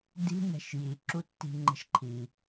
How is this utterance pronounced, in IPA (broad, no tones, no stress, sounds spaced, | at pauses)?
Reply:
d i̤ n ɛ̤ ʃ j i ǁ u tː i̤ ŋ͡ǃ ə̤ ʃ ǃʰ i